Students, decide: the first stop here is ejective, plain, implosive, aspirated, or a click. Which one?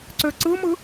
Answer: click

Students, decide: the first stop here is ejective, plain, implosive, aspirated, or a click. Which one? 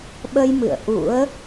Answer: implosive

